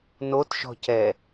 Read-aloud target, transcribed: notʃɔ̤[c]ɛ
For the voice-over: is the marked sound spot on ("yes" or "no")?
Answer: yes